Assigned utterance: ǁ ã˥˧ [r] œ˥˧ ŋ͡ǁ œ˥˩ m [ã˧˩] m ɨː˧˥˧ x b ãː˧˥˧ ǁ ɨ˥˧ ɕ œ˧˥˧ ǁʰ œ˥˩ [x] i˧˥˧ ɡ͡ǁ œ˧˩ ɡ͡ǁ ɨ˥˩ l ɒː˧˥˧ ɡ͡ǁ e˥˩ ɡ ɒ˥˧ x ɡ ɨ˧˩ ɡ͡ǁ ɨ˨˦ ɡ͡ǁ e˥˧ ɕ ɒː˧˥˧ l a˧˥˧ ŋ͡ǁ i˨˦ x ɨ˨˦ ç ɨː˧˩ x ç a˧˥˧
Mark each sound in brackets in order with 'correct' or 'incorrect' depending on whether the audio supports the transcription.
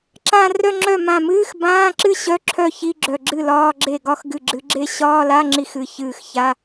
correct, correct, incorrect: ç

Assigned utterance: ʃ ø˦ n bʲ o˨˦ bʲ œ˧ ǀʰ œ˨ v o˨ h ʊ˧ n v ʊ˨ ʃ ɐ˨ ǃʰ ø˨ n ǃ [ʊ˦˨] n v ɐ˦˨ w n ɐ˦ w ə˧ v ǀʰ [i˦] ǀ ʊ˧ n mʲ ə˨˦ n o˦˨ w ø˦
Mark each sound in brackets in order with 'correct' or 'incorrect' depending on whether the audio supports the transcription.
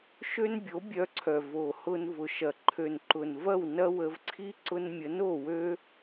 incorrect: ʊ˨, correct

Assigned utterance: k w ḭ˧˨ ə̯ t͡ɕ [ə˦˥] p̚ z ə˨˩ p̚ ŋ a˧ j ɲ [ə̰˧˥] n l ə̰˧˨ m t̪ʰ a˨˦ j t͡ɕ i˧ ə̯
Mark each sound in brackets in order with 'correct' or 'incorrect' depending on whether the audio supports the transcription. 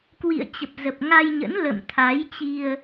incorrect: ə˨˩, correct

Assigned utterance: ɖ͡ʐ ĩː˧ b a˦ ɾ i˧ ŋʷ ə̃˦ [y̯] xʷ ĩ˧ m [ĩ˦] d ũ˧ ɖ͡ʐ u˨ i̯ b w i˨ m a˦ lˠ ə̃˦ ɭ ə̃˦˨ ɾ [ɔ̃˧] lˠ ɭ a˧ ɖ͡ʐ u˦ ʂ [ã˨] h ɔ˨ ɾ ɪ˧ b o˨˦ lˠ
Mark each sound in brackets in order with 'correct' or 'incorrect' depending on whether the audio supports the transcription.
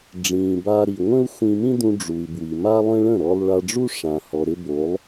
incorrect: u̯, correct, incorrect: ɔ˧, correct

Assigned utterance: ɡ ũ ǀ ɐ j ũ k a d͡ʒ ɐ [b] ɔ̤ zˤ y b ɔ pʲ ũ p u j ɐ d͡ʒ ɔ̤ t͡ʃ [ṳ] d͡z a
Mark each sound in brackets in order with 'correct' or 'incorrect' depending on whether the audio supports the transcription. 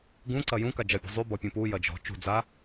incorrect: bʲ, correct

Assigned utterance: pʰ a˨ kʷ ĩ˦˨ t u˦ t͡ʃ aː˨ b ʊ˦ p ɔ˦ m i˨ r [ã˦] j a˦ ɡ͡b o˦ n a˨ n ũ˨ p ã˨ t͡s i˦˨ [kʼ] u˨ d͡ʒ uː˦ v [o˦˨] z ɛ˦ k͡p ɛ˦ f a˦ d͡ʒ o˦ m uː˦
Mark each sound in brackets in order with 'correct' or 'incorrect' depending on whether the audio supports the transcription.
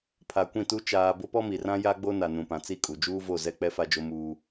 correct, correct, correct

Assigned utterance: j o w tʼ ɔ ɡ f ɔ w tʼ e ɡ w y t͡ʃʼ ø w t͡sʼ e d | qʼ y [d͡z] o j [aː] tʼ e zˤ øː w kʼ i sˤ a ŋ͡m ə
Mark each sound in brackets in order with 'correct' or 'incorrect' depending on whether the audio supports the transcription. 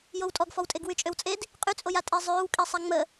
incorrect: t͡sʼ, incorrect: a

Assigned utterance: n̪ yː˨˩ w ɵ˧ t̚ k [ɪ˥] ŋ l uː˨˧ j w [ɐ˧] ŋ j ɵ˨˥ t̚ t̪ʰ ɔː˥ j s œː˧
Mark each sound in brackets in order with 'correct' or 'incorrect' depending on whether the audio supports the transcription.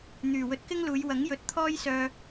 correct, incorrect: ɐ˨˥

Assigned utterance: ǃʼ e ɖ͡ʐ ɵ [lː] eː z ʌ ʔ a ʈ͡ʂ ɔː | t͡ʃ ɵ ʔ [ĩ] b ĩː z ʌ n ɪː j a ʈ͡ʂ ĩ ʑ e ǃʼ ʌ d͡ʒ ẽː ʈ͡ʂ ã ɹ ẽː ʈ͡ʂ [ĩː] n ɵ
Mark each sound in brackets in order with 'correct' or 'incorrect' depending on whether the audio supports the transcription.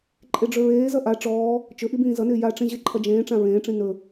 incorrect: ɹ, incorrect: i, incorrect: ĩ

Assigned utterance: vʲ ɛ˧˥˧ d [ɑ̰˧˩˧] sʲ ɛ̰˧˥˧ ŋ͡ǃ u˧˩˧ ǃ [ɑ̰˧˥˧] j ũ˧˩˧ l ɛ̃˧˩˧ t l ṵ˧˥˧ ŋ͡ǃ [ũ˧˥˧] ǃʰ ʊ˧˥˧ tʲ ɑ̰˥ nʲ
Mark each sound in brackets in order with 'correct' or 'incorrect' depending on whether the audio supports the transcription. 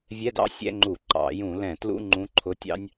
incorrect: ɑ̰˥, incorrect: ɑ̰˧˩˧, correct

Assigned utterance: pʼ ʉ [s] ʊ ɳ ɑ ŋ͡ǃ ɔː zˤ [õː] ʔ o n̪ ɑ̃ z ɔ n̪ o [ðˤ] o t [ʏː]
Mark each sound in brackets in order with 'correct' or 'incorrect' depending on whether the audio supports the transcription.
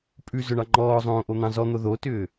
incorrect: z, correct, incorrect: ð, correct

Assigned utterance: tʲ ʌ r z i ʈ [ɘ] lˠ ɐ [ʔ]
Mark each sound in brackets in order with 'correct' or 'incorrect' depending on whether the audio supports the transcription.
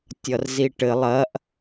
correct, correct

